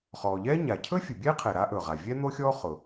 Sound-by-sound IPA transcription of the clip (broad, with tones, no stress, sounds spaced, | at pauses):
χ ɔː˩ ʎ ɛː˥ ɲ a˩ cʰ ɵ˥ fʲ ʊ˩ bʲ ɛː˥ qʰ ɛ˩ ɾ a˥ ʔ ɵ˩ ʁ a˩ vʲ ɛ˥ n̪ o˥ xʲ ɔː˥ χ ʊ˩